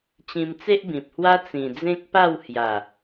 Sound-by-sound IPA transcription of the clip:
t͡ɕ ĩ˧ m t͡s e˦ ʔ b ĩ˨ p̚ h w a˦ t͡s ĩ˨˩ d͡z ẽ˦ k̚ p a˥˧ w h j a˨˩

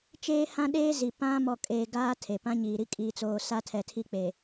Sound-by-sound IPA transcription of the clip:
t͡ʃ eː˦ h ã˦ ɗ eː˦ z i˨ p ã˦ m ɔ˨ kʼ eː˨ ɡ aː˦ tʰ e˨ p ã˦ ɲ iː˨ ɾ i˦ kʼ iː˨ t͡s oː˨ s a˦ tʰ ɛ˨ tʰ i˦ k͡p e˨

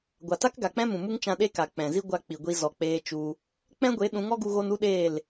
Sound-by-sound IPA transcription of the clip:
ɡʷ a˨ t a˦ k ɡ a˨ k͡p ɛ̃˦ m ũ˨ m u˦ ŋ t͡ʃ ã˧ ɗ e˦ k a˨ k͡p ɛ̃˨ z i˦ ɡʷ a˧ k͡p i˨ ɡʷ i˧ z ɔ˨ k͡p eː˧ t͡ʃ u˧ | k͡p ɛ̃˦ ɡʷ e˨˦ ɗ ũ˨˦ ŋ ɔ˦ ɡ u˧ ɣ o˧ n u˦ ɗ eː˦˨ l

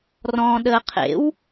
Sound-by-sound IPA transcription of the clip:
r ɔ̃ː ɗ əː qʰ ḛ w

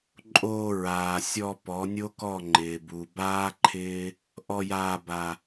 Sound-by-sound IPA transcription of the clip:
ǃʼ oː˧ ɹ aː˨ sʲ ɔ˧ p ɔ˨˦ nʲ o˦ k ɔ˦˨ ŋ͡ǃ ɪː˨ b u˨ b aː˦ ǃʰ ɪː˦ | ʔ ɔ˧ j aː˧ b a˧

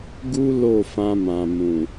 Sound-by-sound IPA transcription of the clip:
ɡ u˦ l o˦˨ f ã˧ m ã˨ m ũ˨

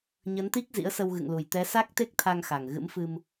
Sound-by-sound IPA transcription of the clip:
ɲ ə˨˦ n t̪ i˦˥ k̚ z ḭ˧˥ ə̯ s ə˧ w ɣ ɨ̰˧˨ ŋ l u˨˩ j t̪ ɛ˨˦ s a˦˥ k̚ t̪ e˦˥ k̚ t̪ʰ a˧ ŋ x a˨˩ ŋ ɣ ɨ̰˧˥ m f ɨ˧ m

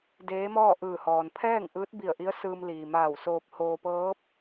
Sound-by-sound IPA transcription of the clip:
d eː˧˥ m ɔː˥˨ ʔ ɯː˧˩ h ɔː˩ n pʰ ɛː˥˨ ŋ ʔ ɯː˧˥ t̚ b i˧˩ ə̯ ʔ i˧˥ ə̯ s ɯː˧ m l iː˩ m aː˧˩ w s oː˧ p̚ h oː˧ p ɤː˧˥ p̚

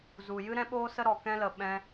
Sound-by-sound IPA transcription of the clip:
z u˨ j ɨ˦ ɾ ɛ̃˦ ɓ oː˦ s ə˦ ɾ ɔ˨ k ɛ̃˦ l ə˨ ɓ ɛ̃˧

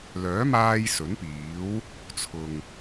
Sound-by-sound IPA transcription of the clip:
l œː˨˥ m aː˧ j s ɵ˨˥ n p iː˨˥ w | t͡sʰ ʊ˨ ŋ

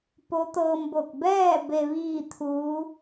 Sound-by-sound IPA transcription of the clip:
p o˧˥ t̪ ɤː˧ m b o˧˩ k̚ b ɛː˥˨ b e˧ ʋ iː˥˨ t̪ʰ uː˧˥

